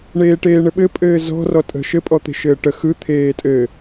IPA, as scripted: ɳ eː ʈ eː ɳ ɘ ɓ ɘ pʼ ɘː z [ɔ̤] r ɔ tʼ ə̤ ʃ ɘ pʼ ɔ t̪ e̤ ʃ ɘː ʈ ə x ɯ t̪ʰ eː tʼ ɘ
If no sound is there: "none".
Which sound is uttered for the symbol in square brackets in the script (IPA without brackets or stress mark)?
ɔ̤